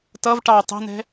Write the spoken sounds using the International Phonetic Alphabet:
t ʌ v ʈ ɑ tˤ ɛ̤ n ɛ̤

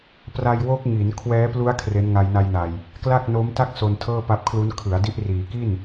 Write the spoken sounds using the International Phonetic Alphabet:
p r a˧ j w o˦˥ k̚ ŋ i˩˦ n kʰ w ɛː˦˥ p l u˦˥ a̯ kʰ r e˦˥ n ŋ a˧ j n a˧ j n a˨˩ j | k l a˥˩ k̚ n o˦˥ m t a˥˩ k̚ s o˧ n tʰ ɤː˥˩ p a˦˥ p̚ kʰ l u˦˥ n kʰ ɯ˩˦ a̯ d i˦˥ ʔ r iː˩˦ k i˥˩ n

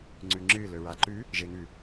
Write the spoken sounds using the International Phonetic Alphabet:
ŋ͡ǀ ʉ ŋ͡ǁ ɨ l ɵ ɹ a ǃ ʉ | ʒ e ŋ ʉ

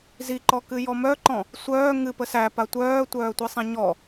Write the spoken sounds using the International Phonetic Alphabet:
z i ǃ ɔ k ɨ j ɔ m œ ǃ ɔ̃ | sʷ œː ŋ ɨ p ə s æ p a tʷ œː tʷ œː tʷ i sˤ ĩ ɲ ɔ

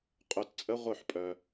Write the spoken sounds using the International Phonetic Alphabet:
qʼ œ˧ t t͡sʼ ə˦ ʁʷ œ˦˨ ħ pʼ œ˧

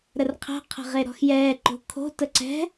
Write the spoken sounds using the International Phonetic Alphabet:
ɾ ə r qʰ ɛ̤ qʰ ə̤ ʁ e ɾ ɔ̤ x j ɛː ǃ o̤ kʰ o̤ t ə ǀ ɛ̤

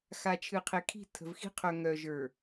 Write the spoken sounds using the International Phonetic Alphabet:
x a˨ t͡ʃʰ ɨ˨ qʰ e˨ kʰ i̤˦˨ tʰ ə̤˨ v x i̤˦ qʰ œ˨ ŋ œ˨ ʒ ə˞˨

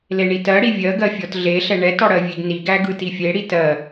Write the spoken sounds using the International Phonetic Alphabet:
l e ɳ i t ɜ ɽ i vʲ ɜ ɡ ɜ fʲ ɔ t ɮ e ɬ ɛ ɳ ɛ t ɔ ɽ ɜ vʲ e ɡ n i ɡ æ ɡ ɯ t i fʲ e ɽ i t ɜ

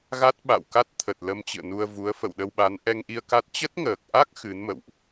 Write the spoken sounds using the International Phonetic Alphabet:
ɣ a˦˥ t̚ ɓ a̰˧˨ w k a˦˥ t̚ t̪ʰ ə˨˩ t̚ l ə˧ m t͡ɕ ɨ̰˧˨ ə̯ n u˧ ə̯ v u˨˦ ə̯ f ə̰˧˨ w ɗ ə˧ w ɓ a˨˦ n ʔ ɛ˧ ŋ ʔ i˧ ə̯ k a˦˥ t̚ t͡ɕ ə˦˥ t̚ ŋ əː˨˩ k̚ ʔ a˦˥ k̚ x ɨ˨˦ n m ə̰˧˨ w ʔ

